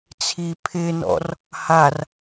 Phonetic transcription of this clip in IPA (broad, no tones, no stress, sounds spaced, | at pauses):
t͡sʰ i pʰ ɪ n ɔ̰ r | h a r